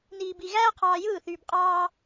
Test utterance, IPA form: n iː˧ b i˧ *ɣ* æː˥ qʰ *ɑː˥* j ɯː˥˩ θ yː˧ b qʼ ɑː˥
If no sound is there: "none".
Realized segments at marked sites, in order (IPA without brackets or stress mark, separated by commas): ɣ, ɑː˧